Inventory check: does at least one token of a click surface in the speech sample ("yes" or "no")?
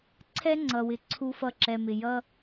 yes